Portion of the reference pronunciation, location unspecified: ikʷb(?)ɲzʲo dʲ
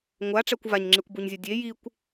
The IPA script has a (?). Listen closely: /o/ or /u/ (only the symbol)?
u